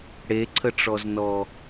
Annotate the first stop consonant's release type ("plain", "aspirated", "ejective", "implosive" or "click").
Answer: click